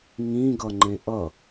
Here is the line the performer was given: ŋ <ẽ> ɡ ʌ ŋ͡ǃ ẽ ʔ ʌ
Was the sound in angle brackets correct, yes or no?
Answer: no